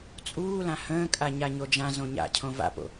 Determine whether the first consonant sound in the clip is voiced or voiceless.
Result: voiceless